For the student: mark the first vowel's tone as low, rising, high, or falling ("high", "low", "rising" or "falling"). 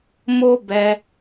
high